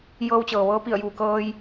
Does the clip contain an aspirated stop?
no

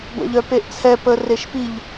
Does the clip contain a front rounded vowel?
yes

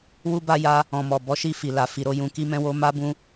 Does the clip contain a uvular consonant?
no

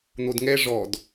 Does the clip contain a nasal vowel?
no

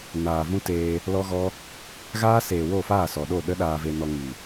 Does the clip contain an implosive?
yes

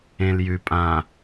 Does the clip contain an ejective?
yes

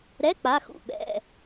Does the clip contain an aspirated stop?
no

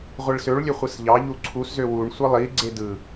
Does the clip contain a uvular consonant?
yes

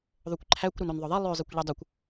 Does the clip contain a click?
yes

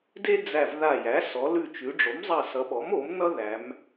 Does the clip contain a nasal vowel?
no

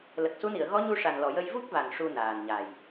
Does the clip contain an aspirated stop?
no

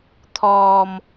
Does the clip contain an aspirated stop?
yes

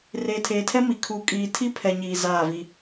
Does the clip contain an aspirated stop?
yes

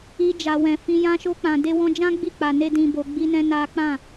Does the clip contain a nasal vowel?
yes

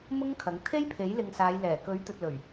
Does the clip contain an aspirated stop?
yes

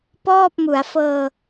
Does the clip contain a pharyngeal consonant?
no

